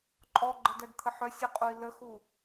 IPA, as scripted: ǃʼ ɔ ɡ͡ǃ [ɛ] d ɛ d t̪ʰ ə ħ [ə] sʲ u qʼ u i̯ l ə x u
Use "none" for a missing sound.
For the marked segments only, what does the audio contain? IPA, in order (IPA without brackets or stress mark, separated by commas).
ə, œ